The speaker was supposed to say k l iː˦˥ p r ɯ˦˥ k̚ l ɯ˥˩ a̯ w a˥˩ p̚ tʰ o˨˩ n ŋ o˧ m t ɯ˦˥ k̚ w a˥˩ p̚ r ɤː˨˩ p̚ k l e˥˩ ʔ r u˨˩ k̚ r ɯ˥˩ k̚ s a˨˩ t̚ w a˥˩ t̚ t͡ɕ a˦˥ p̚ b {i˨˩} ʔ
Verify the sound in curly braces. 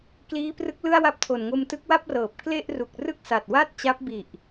correct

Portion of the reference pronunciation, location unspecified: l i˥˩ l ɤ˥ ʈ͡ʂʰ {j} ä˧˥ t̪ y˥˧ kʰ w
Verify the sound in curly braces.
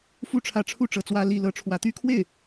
incorrect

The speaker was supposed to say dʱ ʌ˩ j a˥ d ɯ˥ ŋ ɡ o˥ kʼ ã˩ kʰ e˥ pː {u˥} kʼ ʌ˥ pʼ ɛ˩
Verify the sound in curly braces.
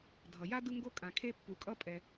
incorrect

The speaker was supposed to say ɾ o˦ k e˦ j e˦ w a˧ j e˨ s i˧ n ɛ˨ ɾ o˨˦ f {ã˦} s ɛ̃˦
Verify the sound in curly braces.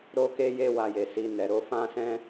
correct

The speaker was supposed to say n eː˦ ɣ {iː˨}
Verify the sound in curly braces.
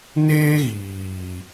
correct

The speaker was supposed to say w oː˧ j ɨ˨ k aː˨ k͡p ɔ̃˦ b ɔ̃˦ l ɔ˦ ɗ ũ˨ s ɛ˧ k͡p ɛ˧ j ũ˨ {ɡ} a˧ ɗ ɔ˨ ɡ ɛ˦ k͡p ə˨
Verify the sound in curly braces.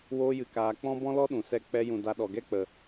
incorrect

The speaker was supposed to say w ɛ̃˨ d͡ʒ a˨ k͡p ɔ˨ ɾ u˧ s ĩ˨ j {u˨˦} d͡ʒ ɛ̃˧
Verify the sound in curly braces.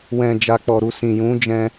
incorrect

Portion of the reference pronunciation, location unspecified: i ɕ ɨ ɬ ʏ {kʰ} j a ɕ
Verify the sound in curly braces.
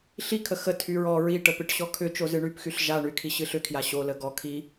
correct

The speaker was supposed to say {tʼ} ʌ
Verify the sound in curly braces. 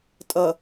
correct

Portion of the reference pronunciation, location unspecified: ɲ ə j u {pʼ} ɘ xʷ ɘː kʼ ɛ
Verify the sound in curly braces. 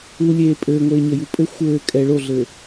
correct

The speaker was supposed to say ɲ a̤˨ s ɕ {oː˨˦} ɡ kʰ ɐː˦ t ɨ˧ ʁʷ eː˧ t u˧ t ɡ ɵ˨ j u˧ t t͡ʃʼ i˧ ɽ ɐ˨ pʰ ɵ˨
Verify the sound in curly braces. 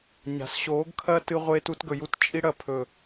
correct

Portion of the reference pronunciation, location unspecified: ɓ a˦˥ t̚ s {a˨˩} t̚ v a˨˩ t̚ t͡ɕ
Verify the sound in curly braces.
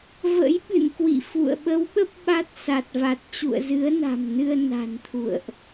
correct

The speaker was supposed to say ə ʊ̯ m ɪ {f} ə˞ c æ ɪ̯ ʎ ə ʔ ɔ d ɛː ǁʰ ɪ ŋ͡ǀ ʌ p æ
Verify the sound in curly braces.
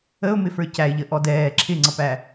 correct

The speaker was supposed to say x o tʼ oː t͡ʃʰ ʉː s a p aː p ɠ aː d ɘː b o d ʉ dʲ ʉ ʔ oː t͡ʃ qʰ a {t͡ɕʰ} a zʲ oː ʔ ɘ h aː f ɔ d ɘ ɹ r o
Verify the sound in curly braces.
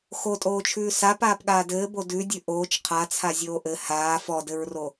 incorrect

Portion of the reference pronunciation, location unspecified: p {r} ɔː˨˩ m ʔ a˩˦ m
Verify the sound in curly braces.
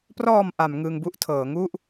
correct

